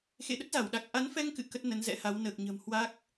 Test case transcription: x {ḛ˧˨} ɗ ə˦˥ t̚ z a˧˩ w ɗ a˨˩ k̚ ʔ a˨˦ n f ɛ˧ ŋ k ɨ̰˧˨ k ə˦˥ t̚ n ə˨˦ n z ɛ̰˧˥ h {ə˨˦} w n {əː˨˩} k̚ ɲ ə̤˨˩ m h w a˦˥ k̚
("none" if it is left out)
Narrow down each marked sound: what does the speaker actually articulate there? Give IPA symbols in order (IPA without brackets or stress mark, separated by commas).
ḛ˧˨, a˨˦, əː˨˩